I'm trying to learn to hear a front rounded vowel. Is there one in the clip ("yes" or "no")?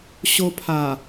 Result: no